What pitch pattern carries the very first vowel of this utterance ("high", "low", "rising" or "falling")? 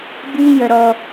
high